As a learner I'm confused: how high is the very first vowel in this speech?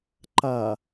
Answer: low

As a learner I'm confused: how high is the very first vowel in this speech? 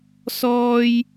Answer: mid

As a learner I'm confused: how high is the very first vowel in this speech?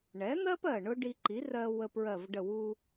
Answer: mid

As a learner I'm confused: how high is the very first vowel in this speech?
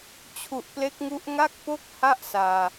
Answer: high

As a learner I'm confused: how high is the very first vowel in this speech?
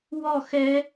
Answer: mid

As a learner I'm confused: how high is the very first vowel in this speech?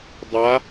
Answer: low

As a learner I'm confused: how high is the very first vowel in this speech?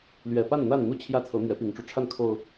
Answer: mid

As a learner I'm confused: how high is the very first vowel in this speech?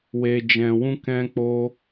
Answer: mid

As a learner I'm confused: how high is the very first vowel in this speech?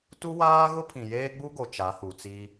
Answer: high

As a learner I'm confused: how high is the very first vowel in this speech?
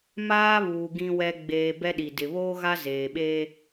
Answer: low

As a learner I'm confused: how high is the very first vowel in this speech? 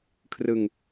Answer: high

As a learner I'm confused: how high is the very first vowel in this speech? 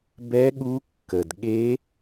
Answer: mid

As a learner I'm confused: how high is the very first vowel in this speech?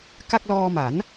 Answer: low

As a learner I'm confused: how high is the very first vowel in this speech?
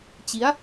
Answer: high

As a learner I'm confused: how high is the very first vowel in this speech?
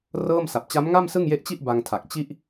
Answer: mid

